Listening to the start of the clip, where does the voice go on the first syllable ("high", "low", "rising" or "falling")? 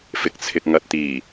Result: low